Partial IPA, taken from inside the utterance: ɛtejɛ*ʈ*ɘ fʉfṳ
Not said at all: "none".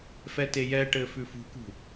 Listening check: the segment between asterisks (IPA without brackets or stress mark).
ʈ